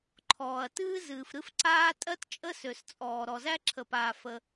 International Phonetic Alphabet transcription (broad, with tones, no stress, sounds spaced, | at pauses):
ǃʰ ɔː˩ ɐ̯ t ɨː˦ z ɨː˩ f ɾ ɨ˦ f ǀ aː˦ tʼ ɜ˦ t t͡ʃʼ ə˦ s ø˩ s t͡sʼ ɔː˩ ɾ ɔ˩ z æ˦ ǁʰ ə˩ p aː˩ f ə˩